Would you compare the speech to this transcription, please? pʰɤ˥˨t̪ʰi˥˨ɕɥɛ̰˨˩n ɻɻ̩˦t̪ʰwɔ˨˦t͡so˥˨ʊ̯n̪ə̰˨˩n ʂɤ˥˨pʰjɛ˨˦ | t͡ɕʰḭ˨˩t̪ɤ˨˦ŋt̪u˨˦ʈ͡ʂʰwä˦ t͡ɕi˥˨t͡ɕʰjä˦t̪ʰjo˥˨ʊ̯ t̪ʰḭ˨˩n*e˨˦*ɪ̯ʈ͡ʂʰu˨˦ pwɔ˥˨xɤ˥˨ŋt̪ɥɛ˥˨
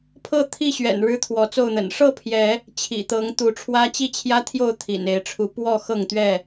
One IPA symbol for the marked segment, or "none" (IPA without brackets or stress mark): e˨˦